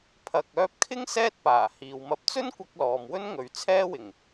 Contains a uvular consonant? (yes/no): no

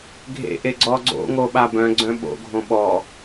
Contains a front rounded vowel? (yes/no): yes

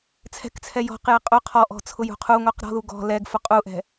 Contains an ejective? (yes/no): yes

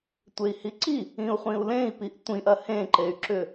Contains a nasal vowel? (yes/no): yes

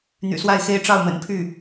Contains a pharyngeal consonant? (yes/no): no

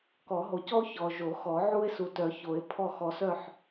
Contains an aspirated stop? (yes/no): yes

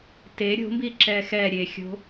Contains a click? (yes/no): yes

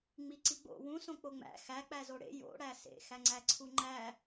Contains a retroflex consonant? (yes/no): yes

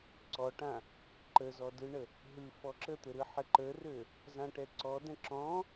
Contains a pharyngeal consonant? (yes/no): yes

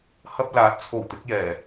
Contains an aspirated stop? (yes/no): yes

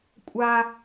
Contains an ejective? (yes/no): yes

